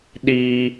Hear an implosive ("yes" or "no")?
yes